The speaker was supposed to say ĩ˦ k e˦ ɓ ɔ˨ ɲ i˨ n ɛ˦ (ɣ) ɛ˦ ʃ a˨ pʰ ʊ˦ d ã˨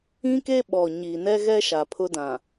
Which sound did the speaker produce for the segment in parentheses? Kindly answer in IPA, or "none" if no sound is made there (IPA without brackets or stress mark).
ɣ